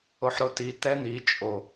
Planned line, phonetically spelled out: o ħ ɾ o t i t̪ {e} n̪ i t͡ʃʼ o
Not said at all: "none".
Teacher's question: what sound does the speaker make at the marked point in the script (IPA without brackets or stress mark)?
ɛ